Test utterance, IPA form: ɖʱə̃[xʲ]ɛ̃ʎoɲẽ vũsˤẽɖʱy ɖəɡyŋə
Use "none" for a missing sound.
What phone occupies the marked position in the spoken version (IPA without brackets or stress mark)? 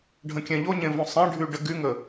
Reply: kʲ